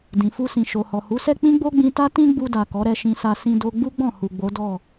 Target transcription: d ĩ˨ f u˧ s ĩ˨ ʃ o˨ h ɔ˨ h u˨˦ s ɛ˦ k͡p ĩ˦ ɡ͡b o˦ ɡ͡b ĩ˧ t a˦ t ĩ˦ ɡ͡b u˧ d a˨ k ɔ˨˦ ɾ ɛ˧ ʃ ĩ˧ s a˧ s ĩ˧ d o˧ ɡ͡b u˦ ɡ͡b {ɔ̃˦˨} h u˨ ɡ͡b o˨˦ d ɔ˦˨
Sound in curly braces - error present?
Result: no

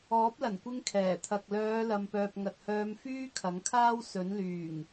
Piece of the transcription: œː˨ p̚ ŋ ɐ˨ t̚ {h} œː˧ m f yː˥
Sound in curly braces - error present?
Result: no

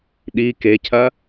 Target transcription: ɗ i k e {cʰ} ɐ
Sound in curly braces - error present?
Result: no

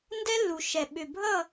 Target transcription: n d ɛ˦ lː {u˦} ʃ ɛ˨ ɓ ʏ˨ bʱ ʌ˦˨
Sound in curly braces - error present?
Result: yes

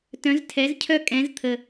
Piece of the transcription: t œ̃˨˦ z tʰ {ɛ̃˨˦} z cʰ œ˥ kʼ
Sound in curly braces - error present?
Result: yes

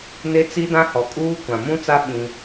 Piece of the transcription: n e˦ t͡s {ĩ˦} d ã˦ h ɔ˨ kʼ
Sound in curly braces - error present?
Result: yes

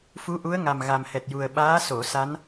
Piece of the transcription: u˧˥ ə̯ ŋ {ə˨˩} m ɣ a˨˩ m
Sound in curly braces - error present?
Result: yes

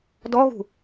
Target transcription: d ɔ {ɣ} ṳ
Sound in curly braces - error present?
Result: no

